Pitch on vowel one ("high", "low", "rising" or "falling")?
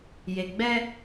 low